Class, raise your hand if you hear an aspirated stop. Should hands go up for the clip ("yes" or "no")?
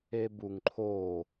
yes